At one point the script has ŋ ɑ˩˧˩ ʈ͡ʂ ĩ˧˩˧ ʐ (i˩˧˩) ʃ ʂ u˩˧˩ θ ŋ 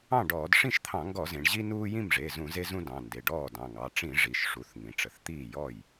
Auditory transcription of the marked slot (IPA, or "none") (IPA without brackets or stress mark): i˩˧˩